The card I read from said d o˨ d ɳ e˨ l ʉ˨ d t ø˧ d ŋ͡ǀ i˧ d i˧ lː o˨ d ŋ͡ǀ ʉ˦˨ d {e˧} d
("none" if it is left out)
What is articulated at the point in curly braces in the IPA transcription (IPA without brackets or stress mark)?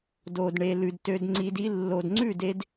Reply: e˧